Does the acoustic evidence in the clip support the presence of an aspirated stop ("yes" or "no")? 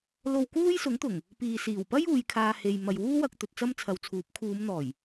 yes